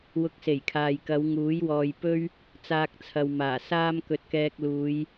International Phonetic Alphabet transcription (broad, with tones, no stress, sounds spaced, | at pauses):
w ʊ˧ k̚ s e˨˩ j kʰ aː˨ j k ɐ˨˧ w ŋ uː˨˥ j w ɔː˨ j p ɵ˥ ɥ | t͡s aː˧ k̚ t͡sʰ ɐ˨ w m aː˨˩ s aː˥ m k ɵ˧ t̚ k ɛː˧ k̚ l uː˨˧ j